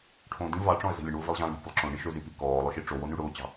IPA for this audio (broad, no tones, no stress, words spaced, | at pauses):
ʈʰõdĩ vɑʈ͡ʂɔ̃ə̯ zə̤lʲəɳwʊ vilˠʑɑ̃lˠɳi̤ po̤lˠǁõ ɳiʃɵzy pikɔːlˠʊʃi ʈ͡ʂowony ɽʊːt͡ɕɑ̤